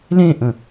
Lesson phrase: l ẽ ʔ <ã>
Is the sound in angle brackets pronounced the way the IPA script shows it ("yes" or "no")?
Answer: no